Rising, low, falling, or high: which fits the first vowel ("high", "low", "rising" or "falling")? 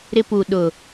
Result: high